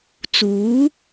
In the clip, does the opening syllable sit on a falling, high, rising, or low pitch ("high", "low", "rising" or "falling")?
rising